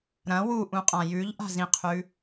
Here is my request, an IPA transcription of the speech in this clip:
ɾ ɐ̃ w u ʔ ũ qʼ ã j ʉ ʎ ʔ a̤ z ĩ qʰ ʉ

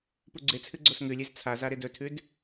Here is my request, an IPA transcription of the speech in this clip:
p u ɡ͡ǀ e t͡sʰ ɨ ɡ͡ǀ o s ŋ ʉ lʲ e z t͡sʰ a z a ɾ e d ɵ tʰ ʉ d

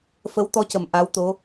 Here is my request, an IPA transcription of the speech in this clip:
f ə˧˥ w t̪ ɔ˧˥ c ə˨˩ m ʔ a˧˥ w t̪ o˧˥

